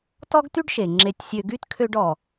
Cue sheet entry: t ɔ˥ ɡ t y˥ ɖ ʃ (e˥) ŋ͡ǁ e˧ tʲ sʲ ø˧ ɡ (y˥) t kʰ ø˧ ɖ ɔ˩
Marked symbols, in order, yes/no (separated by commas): no, yes